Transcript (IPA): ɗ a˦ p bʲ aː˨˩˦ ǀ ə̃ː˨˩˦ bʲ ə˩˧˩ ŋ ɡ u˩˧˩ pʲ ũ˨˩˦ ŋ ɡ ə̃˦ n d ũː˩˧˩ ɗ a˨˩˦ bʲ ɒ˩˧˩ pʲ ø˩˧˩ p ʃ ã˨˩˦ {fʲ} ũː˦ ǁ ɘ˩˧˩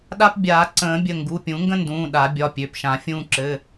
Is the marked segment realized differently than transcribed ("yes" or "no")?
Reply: no